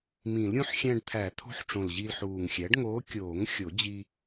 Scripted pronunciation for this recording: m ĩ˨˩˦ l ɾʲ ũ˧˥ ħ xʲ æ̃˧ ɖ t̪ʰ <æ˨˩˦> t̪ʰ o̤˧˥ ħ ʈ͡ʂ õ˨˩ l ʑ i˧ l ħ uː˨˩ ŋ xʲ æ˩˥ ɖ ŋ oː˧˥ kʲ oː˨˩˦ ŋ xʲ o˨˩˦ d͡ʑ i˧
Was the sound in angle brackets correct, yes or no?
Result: yes